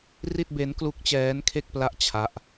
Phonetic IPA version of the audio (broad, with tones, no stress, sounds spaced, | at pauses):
r i˥˩ t̚ b e˦˥ n k l u˦˥ k̚ t͡ɕ ɛː˦˥ n kʰ e˥˩ k̚ p l a˦˥ ʔ t͡ɕʰ a˦˥ ʔ